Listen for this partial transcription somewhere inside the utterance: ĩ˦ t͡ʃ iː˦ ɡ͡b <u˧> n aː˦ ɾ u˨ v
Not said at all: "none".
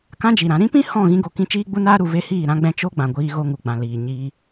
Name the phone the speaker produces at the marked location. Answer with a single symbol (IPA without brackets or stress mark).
u˦